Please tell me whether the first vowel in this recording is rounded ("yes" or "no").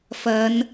no